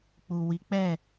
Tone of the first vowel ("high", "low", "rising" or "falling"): low